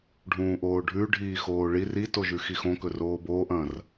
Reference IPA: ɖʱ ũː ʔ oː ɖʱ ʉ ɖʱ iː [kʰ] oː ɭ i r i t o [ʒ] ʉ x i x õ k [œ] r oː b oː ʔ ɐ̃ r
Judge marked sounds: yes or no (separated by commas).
no, yes, no